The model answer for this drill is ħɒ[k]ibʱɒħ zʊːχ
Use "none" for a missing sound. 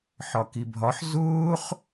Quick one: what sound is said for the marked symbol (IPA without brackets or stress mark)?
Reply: k